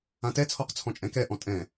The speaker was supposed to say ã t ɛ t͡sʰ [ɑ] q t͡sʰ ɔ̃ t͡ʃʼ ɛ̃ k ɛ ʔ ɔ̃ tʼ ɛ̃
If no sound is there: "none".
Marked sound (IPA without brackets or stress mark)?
ɔ